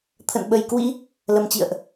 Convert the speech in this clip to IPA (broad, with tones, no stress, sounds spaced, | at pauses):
t̪ʰ ə̰˧˨ n ɓ ə˨˩ j k w ḭ˧˥ | l ə˨˩ m t͡ɕ ḭ˧˨ ə̯ ʔ